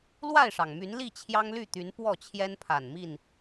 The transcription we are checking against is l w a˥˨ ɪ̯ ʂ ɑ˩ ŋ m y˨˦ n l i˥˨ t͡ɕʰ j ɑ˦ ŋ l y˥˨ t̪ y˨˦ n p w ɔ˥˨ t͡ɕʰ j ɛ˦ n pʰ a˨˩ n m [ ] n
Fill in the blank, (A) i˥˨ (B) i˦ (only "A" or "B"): A